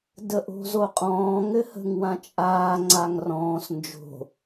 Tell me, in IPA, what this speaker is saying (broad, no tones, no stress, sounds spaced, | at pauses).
d ə ʔ o̤ z o qʼ ɔ̃ː ŋ ɘ h ə̤ ŋ w ã t͡ʃʼ aː ŋ͡ǀ a ŋ r ɔ̃ː s n d͡ʒ o̤